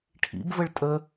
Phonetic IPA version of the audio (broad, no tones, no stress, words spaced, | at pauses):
ʈʰḭbvəɭ tʼə